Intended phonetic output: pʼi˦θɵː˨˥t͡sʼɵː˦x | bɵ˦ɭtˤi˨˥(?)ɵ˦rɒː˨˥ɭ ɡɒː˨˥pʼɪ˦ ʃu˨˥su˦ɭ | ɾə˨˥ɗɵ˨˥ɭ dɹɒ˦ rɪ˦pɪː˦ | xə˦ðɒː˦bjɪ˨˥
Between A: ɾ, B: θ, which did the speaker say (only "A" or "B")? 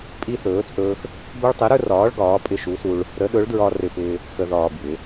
A